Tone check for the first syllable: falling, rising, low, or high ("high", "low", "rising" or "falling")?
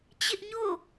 high